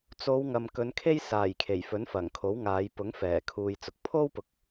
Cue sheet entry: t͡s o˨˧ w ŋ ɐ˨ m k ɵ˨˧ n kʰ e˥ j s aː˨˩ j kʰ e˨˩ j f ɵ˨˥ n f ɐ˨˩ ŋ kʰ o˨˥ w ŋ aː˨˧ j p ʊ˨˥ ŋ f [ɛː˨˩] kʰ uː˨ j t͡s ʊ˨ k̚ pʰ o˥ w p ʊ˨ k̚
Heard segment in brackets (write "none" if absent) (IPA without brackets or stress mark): ɛː˨˩